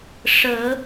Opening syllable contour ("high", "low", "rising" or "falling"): rising